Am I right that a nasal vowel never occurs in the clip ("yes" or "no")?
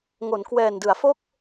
yes